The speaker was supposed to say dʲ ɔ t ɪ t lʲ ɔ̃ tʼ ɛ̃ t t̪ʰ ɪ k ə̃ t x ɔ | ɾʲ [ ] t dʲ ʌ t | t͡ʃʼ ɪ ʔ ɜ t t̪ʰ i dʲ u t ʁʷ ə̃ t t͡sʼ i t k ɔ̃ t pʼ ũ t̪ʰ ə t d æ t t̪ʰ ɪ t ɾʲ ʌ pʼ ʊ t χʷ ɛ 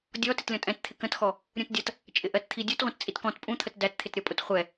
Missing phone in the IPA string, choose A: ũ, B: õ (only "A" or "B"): A